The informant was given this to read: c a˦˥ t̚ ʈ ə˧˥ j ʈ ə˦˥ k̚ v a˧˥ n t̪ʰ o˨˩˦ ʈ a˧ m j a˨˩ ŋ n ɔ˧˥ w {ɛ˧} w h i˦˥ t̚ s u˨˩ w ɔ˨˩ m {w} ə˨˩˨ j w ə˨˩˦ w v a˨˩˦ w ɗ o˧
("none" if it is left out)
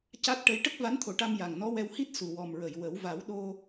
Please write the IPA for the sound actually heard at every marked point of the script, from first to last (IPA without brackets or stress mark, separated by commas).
ɛ˧, ɹ